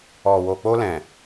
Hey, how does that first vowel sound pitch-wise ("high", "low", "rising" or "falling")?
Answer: low